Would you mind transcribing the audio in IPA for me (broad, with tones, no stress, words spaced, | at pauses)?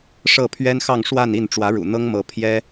ʂɤ˥˩ pʰɥɛ˥nxɑ˥˧ŋ ʂwa˥˧ni˥˩n ʈ͡ʂwä˧˥ɻṵ˨˩ n̪ɤ˥ŋmɤ˧˥ pʰjɛ˥